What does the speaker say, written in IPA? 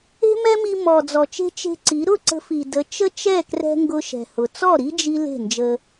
e̤˦ m ɛ˦ m i˧ m ɔ˨ d͡z ɔ˨ t͡ʃ e̤˧ t͡ʃ e̤˧ ǀ i˨˦ ɾ ʊ˦˨ ǀ ə̤˧ f i˨ d ə˨˦ t͡ʃ ə˦ t͡ʃ ɛ˦˨ k r ɛ̤˧ ŋ ɡ ʊ˧ ʃ ɛ̤˨ h ʊ˨ t͡s ɔ˦˨ ɾ i˦ d͡ʒ i˦ l e̤˦˨ n d͡ʒ ə˧

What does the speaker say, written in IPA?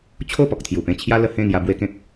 t͡ɕʰ o˥˧ p ɔ˨ k̚ t̪ʰ j u˨˩ p ẽ˥˧ t͡ɕʰ j a˦ l ə˧ h ẽ˥˧ ŋ j a˧ b w e˦ k ẽ˦ k̚

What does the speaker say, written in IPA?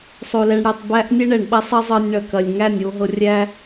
sˤ o˧ l ɛ˧ ɳ ɽ æ˧ tˤ b æ˦ ʔ nʲ ɛ˦ ɳ ɛ˨ ɳ ɓ ɐ˦ sˤ ɐ˦ zˤ ɤ˧ nʲ ɳ ɐ˨ k ɐ˨ lʲ ŋ æ˦˨ nʲ o˧ ɦ ɤ˧ rʲ æ˦

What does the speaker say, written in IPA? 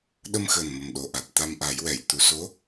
ɗ ə˧ m x əː˨˩ n m ə˨˩ m ɗ o˨˩ ʔ a˨˩ t̚ t̪ a˧ m ʔ a˨˩˦ j w ɛ˨˩˨ j t̪ u˨˩˦ s o˧˥

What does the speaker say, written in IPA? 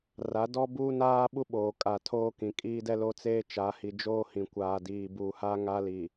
r a˨˦ d ɔ˦ b uː˦ n aː˦ ɓ u˦ ɓ oː˨ kʼ a˨ tʰ oː˦ k ĩ˨ kʼ iː˦ d ɛ˦ l o˦ t͡s eː˦ t͡ʃ a˨˦ h i˨ d͡ʒ oː˦ h ĩ˨ kʷ aː˨ d iː˨ b uː˨ h a˦ ŋ a˦ l i˨

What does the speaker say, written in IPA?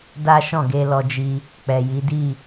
d a˦ ʃ ɔ̃˦˨ ɡ e˧ l ɔ˧ d͡ʒ i˧ | k͡p ɛ˨ j i˨˦ d i˦˨

